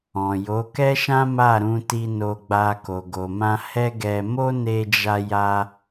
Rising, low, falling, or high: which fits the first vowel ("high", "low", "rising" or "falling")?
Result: low